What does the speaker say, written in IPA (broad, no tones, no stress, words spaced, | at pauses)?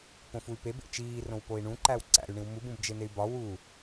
põfuy̯pebḛ t͡ʃiːrõw poi̯ɳũǃæw ǀæ̰y̯ɳĩw mubũbd͡ʒen̪ey̯ bɒ wu